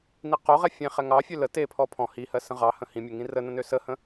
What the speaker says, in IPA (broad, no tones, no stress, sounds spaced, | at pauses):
n i q o ʁ ɛ fʲ ẽ χ ɛ ŋ ɑ fʲ ø l ə t e pʰ ɔ pʰ ɔ̃ h i h ɜ s ə̃ ʁ ɑ h ə̃ h ĩ mʲ ə ŋ ĩ r ə n ə̃ n ø s ə h ə̃